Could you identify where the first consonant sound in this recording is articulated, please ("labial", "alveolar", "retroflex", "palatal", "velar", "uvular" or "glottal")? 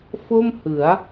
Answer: labial